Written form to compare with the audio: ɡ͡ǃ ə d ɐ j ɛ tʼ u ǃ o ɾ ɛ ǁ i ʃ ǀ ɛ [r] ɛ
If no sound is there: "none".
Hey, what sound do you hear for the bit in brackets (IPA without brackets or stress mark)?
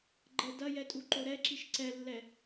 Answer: lː